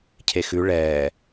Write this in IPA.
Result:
cʰ e x ʉ ɭ ɛː

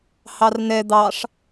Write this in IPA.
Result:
h ɑ r n ɛ d̪ ɑ ʂ

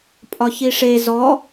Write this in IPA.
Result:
pʼ ɒ ç i ʂ e z ɔ

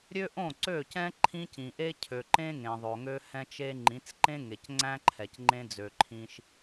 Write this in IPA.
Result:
ɾʲ ø˦ ʔ õ˦˨ ǀ ø˦˨ c ɛ̃˦ ǃʰ ĩ˦ c ĩ˨ ʔ e˦ cʰ ø˨ ǃ ẽ˦ ŋ ẽ˨ ðˤ o˨ ŋ ø˦ h ɛ̃˦ t͡ʃ e˦ ŋ͡ǃ ĩ˨˦ t͡s ǃ ẽ˦ ŋ e˨ c ŋ͡ǀ æ̃˦ ǃʰ ɛ˨ c ŋ͡ǃ ẽ˦ d͡z ø˨ ǃʰ ĩ˦ ʃ

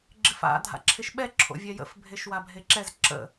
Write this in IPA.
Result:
ɡ͡ǁ ɪ f a̰ dʱ a̰ ǁʰ ɪ ʃ ɓ ɛ ǁʰ o̰ vʲ ɛ j ə̰ f bʱ e ʃ w a bʱ e ǁ ɛ z ǁ ə̰

